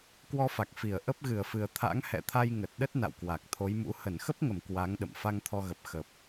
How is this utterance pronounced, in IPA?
k w ɔ˧ f a˨˩ k̚ f i˧˩ ə̯ ʔ ə˦˥ p̚ ɣ ɨ˧˩ ə̯ f ɨ˨˩ ə̯ t̪ʰ a̰˧˥ ŋ h ɛ̰˧˨ t̪ʰ a˧ j ŋ ə˨˩ t̚ ɗ ə˦˥ t̚ n a̰˧˨ w k w a˨˩ k̚ t̪ʰ o˨˦ j m ṵ˧˥ h ə˧˩ n x ə˦˥ p̚ ŋ ə˧˩ m k w a˨˦ ŋ ɗ ə̰˧˨ m f a˧ ŋ t̪ʰ ɔ˧ ɣ ə˨˩ p̚ x ə˨˩ p̚

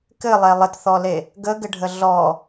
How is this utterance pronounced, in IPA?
k ɘ lˠ ɛ lˠ ə t θ ɔ l e | ɡ ə ɡ ɘ ɖʱ ə ɮ ɔ

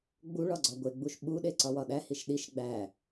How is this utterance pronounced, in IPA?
ɡ͡b u ɭ ɒ ɡ͡ǀ ɒ ɡʷ e ɡ͡b u ʃ ɓ u ɗ e ǀ ɒ w ɒ ɗ æ h i ʃ ɗ i ʃ ɡ͡b æ

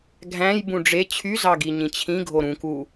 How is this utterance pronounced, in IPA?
ɡʱ æ̃ j b ũ ɖ͡ʐ e t͡ɕʰ y z ɑ ɡ i ɲ ĩ t͡ɕʰ ĩ ɡʱ o ɾ ũ k u

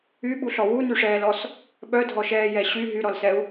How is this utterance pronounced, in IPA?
y ɓ u ɬ ɔ w u n y ʂ ɛː l ɔ s | ɓ œ dʱ ɔ ʃ ɛː j ɛ ɕ y ɦ y ɾ ɔ l s ɛ u̯

